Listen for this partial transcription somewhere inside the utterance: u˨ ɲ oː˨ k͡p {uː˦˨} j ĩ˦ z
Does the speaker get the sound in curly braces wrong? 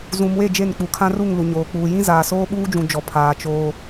yes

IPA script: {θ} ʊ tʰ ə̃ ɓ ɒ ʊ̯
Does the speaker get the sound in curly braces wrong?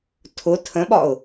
yes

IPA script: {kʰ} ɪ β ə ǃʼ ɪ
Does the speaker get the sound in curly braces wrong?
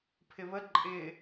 yes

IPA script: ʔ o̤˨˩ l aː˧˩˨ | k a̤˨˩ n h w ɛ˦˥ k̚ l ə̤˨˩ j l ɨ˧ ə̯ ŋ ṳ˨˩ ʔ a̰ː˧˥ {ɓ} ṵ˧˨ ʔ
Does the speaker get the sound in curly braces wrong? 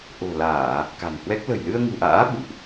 no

